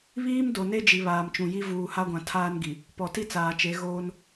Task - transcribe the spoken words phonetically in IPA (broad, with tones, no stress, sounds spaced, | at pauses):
β iː˦ m d o˨ n e˦ d͡ʒ i˨ β aː˨ m t͡ʃ ũ˨ j i˦ v uː˨ h a˦ ɡʷ ã˨ tʰ aː˦ n ɡ i˨ | p ɔ˨ t i˦ t͡s aː˨ t͡ʃ e˨˦ ɣ oː˦ n